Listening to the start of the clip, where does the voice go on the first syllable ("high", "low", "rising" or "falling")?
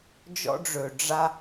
high